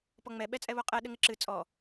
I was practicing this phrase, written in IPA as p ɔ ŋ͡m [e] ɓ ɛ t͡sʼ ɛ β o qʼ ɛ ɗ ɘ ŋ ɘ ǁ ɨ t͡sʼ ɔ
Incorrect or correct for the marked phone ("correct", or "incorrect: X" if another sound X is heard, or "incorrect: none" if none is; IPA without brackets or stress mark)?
incorrect: ɛ